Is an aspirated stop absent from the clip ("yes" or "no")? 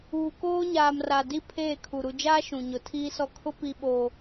no